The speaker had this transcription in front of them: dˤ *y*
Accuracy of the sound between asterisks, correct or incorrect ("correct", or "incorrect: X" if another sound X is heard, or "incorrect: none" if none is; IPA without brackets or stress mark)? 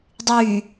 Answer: correct